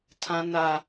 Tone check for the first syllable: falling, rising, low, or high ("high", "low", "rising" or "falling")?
high